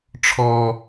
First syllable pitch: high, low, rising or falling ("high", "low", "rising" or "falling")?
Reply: high